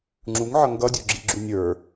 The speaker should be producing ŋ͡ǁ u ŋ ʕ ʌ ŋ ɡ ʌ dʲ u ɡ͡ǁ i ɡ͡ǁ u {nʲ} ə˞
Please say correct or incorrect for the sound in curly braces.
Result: correct